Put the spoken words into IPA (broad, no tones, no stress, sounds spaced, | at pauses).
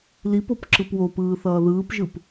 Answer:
l i p o p ǁ ɯ p w o p ɯː θ ʌː ð ɯː p ʒ ɯ p